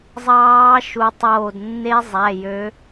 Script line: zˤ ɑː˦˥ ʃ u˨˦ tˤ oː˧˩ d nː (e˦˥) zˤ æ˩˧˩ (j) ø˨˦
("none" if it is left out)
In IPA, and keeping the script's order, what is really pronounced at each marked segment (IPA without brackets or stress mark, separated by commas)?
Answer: e˦˥, j